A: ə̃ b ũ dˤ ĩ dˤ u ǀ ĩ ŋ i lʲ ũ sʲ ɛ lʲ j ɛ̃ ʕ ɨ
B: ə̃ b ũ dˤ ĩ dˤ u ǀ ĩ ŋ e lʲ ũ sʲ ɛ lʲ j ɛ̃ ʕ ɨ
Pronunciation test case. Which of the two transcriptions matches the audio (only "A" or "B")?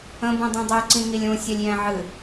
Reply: A